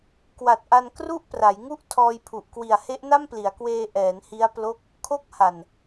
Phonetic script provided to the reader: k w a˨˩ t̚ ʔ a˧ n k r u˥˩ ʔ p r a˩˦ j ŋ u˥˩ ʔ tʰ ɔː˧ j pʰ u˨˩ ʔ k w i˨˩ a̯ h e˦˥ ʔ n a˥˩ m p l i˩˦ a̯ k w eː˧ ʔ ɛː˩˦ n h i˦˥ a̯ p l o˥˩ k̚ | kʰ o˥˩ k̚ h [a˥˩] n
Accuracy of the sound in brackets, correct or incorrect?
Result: incorrect